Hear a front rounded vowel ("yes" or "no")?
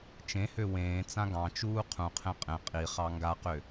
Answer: yes